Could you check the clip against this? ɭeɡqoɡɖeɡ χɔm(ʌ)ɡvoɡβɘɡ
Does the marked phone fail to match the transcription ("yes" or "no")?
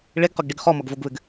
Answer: no